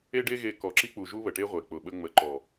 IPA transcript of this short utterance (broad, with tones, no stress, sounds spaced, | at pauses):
e˦ ɖ e˦ ɣ e˧ k ɔ˨ ǁ i˧ k͡p u˨ ʒ u˦ β ə˨ ʈ e˦ ʁʷ e˨ k͡p ʊ˨ ɓ ə˧ ŋ͡m ə˨ ǃ ɔ˨